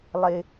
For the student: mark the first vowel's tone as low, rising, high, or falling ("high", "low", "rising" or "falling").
high